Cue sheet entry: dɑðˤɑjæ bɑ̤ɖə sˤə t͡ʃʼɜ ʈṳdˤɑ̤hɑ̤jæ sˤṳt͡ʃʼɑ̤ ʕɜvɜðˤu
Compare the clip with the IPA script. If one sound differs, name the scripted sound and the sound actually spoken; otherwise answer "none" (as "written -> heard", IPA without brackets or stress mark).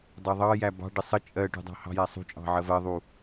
none